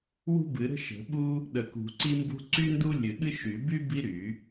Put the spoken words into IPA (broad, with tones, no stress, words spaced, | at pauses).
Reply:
wṳ˥bɨ˨˩˦ɾə̤˥ ʃə̤˨˩˦ɓu˥ | ɗə˨˩˦kṳ˨˩˦ǀi˥mbṳ˥ ǀy˥ndu˥ lʲɨ˨˩˦ɠɨ˥ ʃy˨˩˦by˥ bi˥ɾy˨˩˦